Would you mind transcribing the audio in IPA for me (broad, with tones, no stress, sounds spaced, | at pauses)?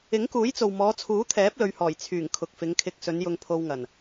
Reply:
ɪ˨˥ ŋ k uː˨˥ j t͡s o˨ w m ɔː˨˧ t͡sʰ uː˨˥ t̪ʰ ɛː˨˥ p̚ l ɵ˧ ɥ h ɔː˨˩ j t͡sʰ yː˨˩ ŋ kʰ ʊ˨ k̚ f ɪ˨˧ ŋ kʰ ɪ˧ k̚ s ɵ˨˧ n j ʊ˧ ŋ pʰ o˧ w ŋ ɐ˨˩ n